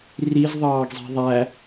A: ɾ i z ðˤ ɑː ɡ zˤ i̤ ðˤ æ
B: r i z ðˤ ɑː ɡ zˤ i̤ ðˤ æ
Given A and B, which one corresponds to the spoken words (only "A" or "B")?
B